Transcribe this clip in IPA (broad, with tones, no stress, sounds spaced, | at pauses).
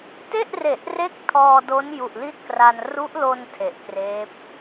t e˥˩ ʔ r e˨˩ ʔ r e˦˥ k̚ tʰ ɔː˧ d o˦˥ n j u˨˩ ʔ l i˥˩ t̚ k r a˧ n r u˦˥ ʔ l o˧ n tʰ e˨˩ ʔ k r eː˦˥ p̚